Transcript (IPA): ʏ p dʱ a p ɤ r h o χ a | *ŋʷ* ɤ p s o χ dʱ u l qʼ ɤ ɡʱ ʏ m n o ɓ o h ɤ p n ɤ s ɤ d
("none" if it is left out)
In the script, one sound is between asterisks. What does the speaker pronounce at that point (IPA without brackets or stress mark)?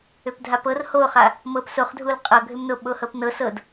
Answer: m